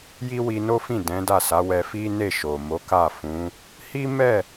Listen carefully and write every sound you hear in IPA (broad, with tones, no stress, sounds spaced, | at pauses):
j i˦ w i˧ n o˦ f ĩ˦˨ d ɛ̃˨˦ d a˦˨ s a˨˦ w ɛ˧ f i˦ n e˦˨ ʃ o˨ m o˨˦ k a˦˨ f ũ˨˦ | h i˦ m ɛ˦˨